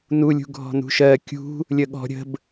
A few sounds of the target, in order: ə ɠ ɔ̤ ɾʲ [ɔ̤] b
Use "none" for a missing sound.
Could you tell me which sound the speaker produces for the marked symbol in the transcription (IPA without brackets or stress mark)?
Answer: ə̤